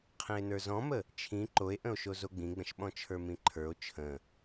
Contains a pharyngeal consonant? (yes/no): no